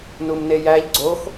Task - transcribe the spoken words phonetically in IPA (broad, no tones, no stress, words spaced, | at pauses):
numnejæʎ ɡ͡ǀox